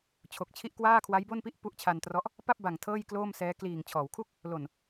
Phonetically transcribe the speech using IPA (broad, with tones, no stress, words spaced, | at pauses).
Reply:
t͡ɕʰo˨˩k̚t͡ɕʰi˥˩ʔ kwaː˥˩kʰwa˦˥jbo˥˩npi˥˩ʔ pu˦˥ʔ t͡ɕʰa˧ntrɔ˦˥ʔ | pa˥˩p̚ba˨˩ŋ tʰɤː˥˩jkloː˥˩msɛː˦˥ kliː˨˩ŋt͡ɕʰɔː˩˦wkʰu˥˩k̚ | lo˨˩n